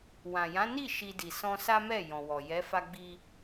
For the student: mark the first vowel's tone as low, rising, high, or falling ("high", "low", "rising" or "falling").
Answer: low